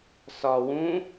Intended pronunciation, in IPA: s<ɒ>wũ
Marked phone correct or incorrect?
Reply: correct